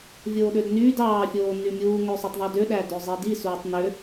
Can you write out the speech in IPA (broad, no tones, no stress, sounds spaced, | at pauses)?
vʲ oː ɗ ø d n yː d ɑː fʲ oː n y mʲ uː ŋ ø sˤ u tˤ ðˤ y d ø ɗ æ d ø zˤ i d i s uː tˤ n ø